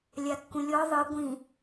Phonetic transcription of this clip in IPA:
lʲ a kː ũ lʲ ɔ ðˤ ɯ ɡʷ ĩ

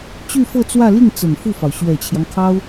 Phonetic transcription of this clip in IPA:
t͡ɕ y˥˧ f ɤ˥˧ t͡s w ä˥˧ l i˥˩ ŋ t͡s ə˨˩ n f u˥˩ f ɑ˩ ʊ̯ ɕ ɥ ɛ˨˩ t͡ɕʰ j ɑ˦ ŋ kʰ ɑ˥ ʊ̯

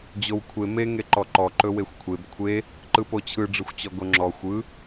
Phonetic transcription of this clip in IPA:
d͡ʑ o w kʷʰ e m e ŋ e ǃ ɔ ǃ ɔ ǃ ɵ w e xʷ kʷʰ e b kʷʰ e | ǃ ɯ p o t͡ɕʰ ɯ ɖ͡ʐ ɯ xʷ t͡ɕ ɔ ɡ o ŋ͡ǁ ɔ xʷ ɯ

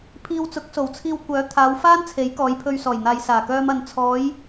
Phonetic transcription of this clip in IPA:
pʰ iː˧ w t͡s ʊ˨˥ k̚ s o˨˩ w t͡sʰ iː˧ w kʷ œː˨˥ t̪ʰ aː˨˧ w f aː˥ n t͡sʰ e˨˥ j k ɔː˨˧ j pʰ ɵ˧ ɥ s ɔː˨˩ j n̪ aː˨ j s aː˨˩ k œː˧ m ɐ˨ n t͡sʰ ɔː˨˧ j

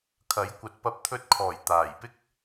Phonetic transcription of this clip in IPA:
kʰ ɐ˨˥ j kʷ ɐ˨˥ t̚ p ɐ˧ p̚ t̪ʰ ɵ˧ t̚ kʰ ɔː˨˩ j t̪ aː˨˩ j p ɪ˥ k̚

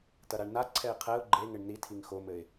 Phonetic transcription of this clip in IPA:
t ɐ ɾ a ɳ n a ǀʰ ɛ ɪ̯ qʰ ɛ ʊ̯ ɡ͡ǃ e ŋ ɘ ɳ n i tʰ i ŋ x o m ɘ ɪ̯

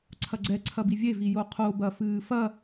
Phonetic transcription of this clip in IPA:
ǀʰ ɐ ɡ͡ǀ ɛ ǀʰ ɐ b i vʲ e v i j o qʰ o b ɐ f ɨː f ɐ

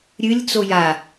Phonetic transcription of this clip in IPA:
ɾʲ ɨ lʲ t͡s o j a

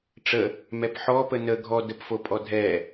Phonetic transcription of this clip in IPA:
ʈ͡ʂ ə | m ɛ p ħ ɔ p ə n ə ɡʱ ɔ d ə p f o pʼ ɔ dʱ ɛ

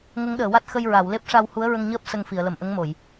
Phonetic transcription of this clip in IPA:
ŋ ə˧˥ ŋ ɗ əː˨˩˨ w a˦˥ t̚ x ə˧ j ɹ a˨˩˨ w l e˦˥ p̚ ʂ a˧ w h u˧˥ ə̯ ɹ ə˧ ŋ ɲ əː˦˥ p̚ s ə˧ ŋ f i˨˩˨ ə̯ l ə˨˩ m ʔ ə˧˥ ŋ m o˨˩˨ j

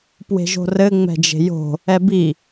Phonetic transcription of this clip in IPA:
p w e̤ ʒ o̤ r ɘ ŋ͡m ɛ̤ d͡ʒ e̤ j o̤ | ɛ b i

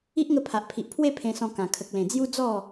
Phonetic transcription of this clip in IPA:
i˦ ʔ ŋ ə˧ pʰ a˨ ʔ pʰ i˨ ʔ pʰ w e˥˧ pʰ ẽ˧ s ɔ̃˧ k ã˨˩ kʰ ə˨ k̚ l ẽ˨˩ d͡z j u˦ d͡z ɔ˥˧

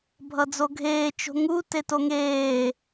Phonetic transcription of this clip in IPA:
bʱ ʌ d͡z o ɡʱ eː t͡ʃ o̤ ŋ u t e t o ŋ eː

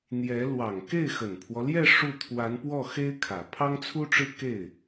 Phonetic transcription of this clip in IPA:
n̪ j ɛ˧˥ l w ɑ˨˩ ŋ k e˥˩ ɪ̯ x ə˨˩ n pʰ w ɔ˦ l j ɛ˥˧ ʂ u˥˩ t̪ʰ w a˧˥ n p w ɔ˥˩ x e˥ ɪ̯ kʰ ä˨˩ pʰ ɑ˥ ŋ t͡sʰ u˥ ʈ͡ʂ ɻ̩˥ k e˥˩ ɪ̯

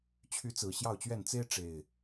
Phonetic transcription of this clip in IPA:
t͡ɕʰ y˨˦ t͡s ɹ̩˨˩ ɕ j ɑ˥˨ ʊ̯ t͡ɕ ɥ ɛ˥˨ n t͡s e˦ ɪ̯ ʈ͡ʂ e˨˩ ɪ̯

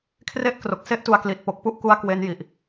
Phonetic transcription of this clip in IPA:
kʰ r e˥˩ ʔ k r o˨˩ k̚ s e˥˩ ʔ t u˧ a̯ k l i˨˩ t̚ p o˨˩ k̚ p u˥˩ ʔ k u˧ a̯ k w e˦˥ n j i˨˩ ʔ

